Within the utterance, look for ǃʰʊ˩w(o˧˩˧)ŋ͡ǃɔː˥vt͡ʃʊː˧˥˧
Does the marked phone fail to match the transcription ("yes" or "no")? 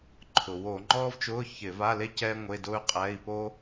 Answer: no